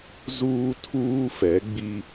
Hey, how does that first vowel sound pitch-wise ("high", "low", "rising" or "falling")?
high